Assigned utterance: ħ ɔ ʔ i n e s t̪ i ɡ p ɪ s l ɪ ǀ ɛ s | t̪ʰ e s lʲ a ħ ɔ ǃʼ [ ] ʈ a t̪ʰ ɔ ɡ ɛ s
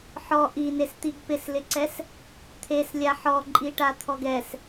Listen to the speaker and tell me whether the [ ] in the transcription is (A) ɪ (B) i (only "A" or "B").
B